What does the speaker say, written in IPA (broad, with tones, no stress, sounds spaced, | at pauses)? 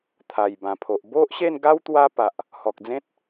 t̪ʰ a˨˩ j b ã˨˩ pʰ o˨ ʔ b o˦ ʔ ɕ e˥˧ n ɡ a˦ w t̪ w a˦ p a˨ ʔ | h ɔ˨ k̚ d͡z ẽ˦ t̚